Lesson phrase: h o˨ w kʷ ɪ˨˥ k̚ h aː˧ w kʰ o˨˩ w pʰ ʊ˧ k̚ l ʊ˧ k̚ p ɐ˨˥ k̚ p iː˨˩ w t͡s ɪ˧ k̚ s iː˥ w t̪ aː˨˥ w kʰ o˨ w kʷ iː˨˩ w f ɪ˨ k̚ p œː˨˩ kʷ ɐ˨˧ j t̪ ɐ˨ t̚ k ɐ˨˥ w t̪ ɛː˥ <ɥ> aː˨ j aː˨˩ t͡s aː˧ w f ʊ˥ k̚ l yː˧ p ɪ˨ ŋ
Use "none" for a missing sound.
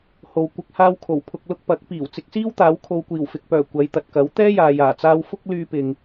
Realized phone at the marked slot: j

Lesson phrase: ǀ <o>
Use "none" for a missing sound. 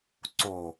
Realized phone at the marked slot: o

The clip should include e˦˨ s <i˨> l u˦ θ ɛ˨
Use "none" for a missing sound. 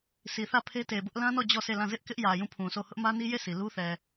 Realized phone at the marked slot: i˨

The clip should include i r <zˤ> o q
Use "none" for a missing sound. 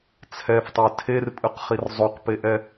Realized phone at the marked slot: zˤ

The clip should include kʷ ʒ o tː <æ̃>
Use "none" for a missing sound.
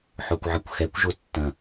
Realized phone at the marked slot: ɐ̃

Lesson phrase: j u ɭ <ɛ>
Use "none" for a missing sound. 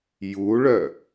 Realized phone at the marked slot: œ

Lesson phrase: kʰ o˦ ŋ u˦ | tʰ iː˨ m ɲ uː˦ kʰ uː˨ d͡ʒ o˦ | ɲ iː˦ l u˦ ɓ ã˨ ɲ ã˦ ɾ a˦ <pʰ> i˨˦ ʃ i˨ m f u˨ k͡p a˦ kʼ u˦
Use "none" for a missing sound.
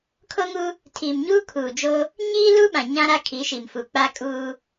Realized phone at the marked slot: kʰ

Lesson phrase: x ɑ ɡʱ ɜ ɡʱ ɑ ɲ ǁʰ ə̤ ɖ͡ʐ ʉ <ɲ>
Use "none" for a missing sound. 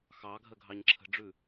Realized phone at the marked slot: none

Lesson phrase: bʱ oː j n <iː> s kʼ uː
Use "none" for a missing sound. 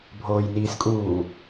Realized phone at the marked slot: iː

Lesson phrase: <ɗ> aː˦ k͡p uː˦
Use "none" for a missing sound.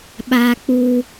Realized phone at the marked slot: ɓ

